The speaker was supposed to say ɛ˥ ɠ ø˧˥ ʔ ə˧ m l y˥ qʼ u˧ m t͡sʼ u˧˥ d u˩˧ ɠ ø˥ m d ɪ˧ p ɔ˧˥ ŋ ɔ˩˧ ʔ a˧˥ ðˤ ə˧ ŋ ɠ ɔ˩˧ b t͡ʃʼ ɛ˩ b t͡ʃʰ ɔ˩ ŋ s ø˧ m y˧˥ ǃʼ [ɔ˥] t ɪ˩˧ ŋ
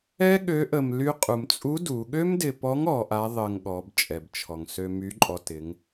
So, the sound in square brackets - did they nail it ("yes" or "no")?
no